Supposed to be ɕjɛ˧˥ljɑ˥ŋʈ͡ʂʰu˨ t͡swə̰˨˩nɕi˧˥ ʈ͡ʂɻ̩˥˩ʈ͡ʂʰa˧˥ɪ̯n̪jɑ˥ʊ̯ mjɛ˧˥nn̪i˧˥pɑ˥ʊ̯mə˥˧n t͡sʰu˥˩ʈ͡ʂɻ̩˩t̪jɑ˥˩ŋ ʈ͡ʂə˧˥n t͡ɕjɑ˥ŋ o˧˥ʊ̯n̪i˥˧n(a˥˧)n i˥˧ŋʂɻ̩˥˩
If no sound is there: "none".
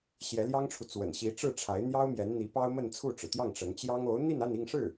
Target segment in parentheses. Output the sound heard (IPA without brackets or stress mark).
a˥˧